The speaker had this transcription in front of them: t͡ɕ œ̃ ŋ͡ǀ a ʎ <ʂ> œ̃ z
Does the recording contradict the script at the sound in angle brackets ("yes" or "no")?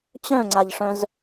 no